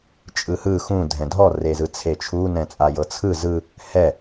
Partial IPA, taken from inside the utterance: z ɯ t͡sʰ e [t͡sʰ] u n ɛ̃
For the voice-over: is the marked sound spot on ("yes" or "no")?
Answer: no